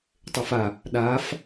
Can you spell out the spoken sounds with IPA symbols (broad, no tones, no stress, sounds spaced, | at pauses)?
tˤ e f a | ɗ a f